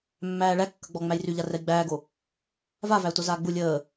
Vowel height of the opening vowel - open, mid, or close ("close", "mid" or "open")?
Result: open